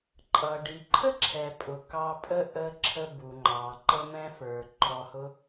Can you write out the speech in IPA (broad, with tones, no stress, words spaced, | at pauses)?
ǃʼʌ˩ ɖi˩ǃʰə˥ǁʰɛ˩pʼʊ˩ kɑ˧pʼə˥ ʔə˧ǁʰə˧ bu˩ŋ͡ǃɑ˩ ǃə˧mɛ̃˧fə˞˩ ǃʰɔ˧hʊ˥